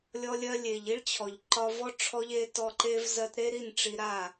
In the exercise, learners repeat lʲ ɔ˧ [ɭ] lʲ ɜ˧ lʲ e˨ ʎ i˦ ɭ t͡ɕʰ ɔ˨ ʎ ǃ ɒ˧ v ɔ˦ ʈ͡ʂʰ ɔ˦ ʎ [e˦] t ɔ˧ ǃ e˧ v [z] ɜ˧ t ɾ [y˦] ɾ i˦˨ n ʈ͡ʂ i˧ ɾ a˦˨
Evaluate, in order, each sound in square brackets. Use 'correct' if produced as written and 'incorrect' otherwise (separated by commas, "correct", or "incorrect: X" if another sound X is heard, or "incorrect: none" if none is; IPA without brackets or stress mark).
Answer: incorrect: none, correct, correct, incorrect: e˦